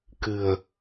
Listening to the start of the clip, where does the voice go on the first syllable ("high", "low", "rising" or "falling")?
low